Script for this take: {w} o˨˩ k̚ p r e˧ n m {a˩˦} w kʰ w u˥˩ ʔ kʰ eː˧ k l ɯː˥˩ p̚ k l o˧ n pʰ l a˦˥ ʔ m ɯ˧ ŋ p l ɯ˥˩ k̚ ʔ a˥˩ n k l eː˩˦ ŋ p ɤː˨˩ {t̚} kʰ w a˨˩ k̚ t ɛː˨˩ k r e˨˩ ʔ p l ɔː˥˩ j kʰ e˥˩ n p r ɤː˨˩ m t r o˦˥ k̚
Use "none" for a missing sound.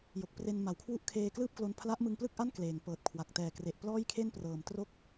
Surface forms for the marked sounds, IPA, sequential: j, a˩˦, t̚

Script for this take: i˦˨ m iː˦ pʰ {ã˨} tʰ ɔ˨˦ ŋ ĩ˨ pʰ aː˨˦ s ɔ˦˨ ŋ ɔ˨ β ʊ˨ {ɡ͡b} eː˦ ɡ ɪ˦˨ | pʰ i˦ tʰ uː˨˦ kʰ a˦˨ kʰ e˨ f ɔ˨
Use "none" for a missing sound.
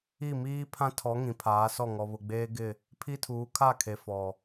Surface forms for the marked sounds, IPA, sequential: ã˦, ɡ͡b

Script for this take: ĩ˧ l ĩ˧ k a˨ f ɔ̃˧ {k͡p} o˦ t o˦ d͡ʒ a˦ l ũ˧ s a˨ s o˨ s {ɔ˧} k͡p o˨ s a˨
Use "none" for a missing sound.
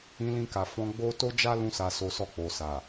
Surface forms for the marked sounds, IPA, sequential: ɡ͡b, ɔ˧

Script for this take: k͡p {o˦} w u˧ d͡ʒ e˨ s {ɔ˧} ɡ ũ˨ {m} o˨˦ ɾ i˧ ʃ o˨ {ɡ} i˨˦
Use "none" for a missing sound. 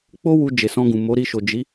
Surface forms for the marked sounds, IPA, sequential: o˦, ɔ̃˧, m, d͡ʒ

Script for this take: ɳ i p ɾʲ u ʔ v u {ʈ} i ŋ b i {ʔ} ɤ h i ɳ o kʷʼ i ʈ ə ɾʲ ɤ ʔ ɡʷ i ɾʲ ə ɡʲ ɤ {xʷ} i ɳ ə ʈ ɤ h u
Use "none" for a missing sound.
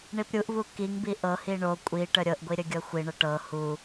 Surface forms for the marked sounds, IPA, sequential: k, ʔ, xʷ

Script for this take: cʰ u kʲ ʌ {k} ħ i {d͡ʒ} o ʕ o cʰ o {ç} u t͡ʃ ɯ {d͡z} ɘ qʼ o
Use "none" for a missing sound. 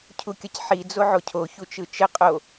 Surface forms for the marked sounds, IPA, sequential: c, d͡z, ç, t͡ʃ

